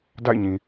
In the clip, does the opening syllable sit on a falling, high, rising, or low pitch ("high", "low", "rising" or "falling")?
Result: falling